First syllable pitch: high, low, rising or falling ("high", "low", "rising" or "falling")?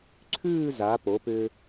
falling